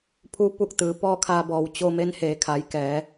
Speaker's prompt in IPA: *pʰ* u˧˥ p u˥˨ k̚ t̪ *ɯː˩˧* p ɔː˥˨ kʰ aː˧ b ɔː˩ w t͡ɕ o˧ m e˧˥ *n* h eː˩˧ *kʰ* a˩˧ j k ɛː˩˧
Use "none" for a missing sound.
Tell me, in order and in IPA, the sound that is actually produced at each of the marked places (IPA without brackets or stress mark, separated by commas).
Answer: pʰ, ɯː˩˧, n, kʰ